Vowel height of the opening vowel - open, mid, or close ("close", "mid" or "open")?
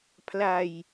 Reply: open